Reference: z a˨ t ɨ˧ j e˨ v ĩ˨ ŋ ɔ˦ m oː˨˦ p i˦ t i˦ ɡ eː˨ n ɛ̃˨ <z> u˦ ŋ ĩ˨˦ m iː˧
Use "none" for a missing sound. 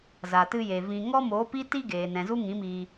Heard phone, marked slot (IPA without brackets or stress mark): z